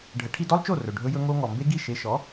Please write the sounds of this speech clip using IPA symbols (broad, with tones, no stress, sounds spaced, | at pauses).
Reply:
ɖʱ ə˩˥ ʈʰ i˧ d ɔ˥ lˠ t͡ʃ o˥˩ r ɵ˩ ɖʱ ɵ˧ j ɵ˧ ŋ o˧ ŋ ɔ˩ m b e˥ ɡ i˥˩ ʃ e˧ ʃ ɔ˩˥